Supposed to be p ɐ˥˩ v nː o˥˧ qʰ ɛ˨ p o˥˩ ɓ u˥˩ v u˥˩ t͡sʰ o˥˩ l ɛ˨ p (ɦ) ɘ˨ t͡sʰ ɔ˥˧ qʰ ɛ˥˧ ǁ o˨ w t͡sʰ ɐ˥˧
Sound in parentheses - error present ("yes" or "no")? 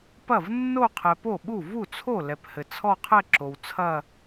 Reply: yes